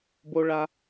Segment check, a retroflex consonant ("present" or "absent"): present